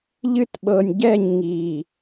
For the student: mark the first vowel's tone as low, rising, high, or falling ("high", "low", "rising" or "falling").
high